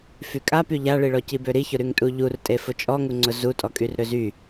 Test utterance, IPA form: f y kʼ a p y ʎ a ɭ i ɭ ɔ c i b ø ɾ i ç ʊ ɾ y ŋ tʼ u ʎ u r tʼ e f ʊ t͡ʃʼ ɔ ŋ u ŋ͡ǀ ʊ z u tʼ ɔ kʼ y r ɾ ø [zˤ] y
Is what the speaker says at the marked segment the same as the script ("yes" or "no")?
no